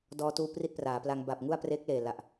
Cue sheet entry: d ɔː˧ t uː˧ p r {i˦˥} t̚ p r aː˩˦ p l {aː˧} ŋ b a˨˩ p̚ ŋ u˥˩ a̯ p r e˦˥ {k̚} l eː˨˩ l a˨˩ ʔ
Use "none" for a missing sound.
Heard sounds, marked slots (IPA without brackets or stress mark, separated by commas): i˥˩, a˧, k̚